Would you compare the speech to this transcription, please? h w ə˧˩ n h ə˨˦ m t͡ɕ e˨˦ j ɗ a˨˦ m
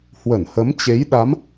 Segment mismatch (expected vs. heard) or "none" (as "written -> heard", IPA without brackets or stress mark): none